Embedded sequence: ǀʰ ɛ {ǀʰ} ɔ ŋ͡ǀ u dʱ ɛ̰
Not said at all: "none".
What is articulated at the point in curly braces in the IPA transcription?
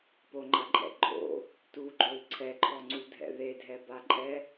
ǃʰ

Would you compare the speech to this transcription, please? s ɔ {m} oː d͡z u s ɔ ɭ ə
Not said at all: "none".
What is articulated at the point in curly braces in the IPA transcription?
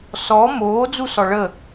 m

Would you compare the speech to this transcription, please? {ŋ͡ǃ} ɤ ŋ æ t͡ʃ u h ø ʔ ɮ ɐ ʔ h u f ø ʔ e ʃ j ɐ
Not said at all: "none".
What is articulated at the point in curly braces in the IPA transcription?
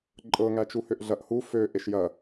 ǃʼ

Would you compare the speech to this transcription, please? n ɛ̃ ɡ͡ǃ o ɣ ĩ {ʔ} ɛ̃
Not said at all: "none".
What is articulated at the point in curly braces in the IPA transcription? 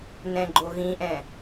ʔ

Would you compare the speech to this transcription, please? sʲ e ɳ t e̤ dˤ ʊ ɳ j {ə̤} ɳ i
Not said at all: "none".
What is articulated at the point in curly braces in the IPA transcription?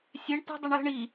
ə̤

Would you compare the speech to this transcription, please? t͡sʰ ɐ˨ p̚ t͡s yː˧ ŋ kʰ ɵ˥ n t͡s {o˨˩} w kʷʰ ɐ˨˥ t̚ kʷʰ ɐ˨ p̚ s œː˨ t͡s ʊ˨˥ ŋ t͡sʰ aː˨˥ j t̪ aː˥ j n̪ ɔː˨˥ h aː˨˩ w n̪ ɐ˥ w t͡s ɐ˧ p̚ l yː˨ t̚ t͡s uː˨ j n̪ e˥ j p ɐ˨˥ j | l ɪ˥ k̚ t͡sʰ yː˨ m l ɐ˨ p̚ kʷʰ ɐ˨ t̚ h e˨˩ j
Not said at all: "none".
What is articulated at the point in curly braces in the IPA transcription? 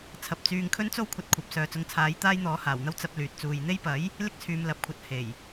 o˥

